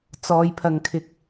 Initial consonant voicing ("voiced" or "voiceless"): voiceless